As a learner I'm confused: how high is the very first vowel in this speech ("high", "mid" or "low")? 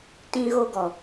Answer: high